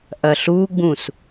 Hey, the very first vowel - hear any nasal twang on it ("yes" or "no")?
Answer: no